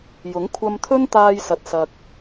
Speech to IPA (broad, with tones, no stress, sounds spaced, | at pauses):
j ʊ˨˥ ŋ kʷʰ ɐ˧ m t̪ʰ ɵ˥ n t̪ aː˧ j s ɐ˨ t̚ s ɐ˨ k̚